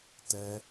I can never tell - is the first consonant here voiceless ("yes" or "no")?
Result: yes